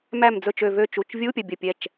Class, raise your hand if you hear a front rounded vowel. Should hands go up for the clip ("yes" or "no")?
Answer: yes